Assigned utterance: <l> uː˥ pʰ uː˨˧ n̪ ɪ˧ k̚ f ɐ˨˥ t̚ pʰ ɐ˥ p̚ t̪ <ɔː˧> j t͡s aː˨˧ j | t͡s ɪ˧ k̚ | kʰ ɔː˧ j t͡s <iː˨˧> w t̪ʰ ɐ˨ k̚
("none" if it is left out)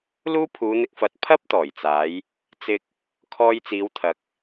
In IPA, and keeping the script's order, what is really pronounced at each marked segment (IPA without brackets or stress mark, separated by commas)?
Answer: l, ɔː˨˩, iː˨˧